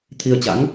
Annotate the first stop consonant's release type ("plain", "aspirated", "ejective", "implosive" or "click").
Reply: aspirated